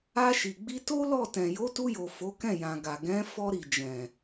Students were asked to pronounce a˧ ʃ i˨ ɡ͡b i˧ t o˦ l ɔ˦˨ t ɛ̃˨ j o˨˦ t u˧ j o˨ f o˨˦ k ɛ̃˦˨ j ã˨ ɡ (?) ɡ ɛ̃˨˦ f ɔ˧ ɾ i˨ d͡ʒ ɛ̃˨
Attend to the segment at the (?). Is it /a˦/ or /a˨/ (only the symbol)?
a˨